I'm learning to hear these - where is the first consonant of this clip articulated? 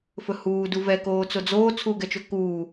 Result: lips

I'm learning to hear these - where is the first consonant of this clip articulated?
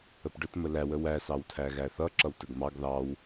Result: lips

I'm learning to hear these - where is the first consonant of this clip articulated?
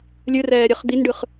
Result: tongue tip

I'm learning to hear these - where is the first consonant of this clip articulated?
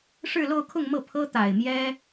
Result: retroflex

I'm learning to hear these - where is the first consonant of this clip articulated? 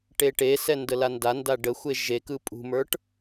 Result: retroflex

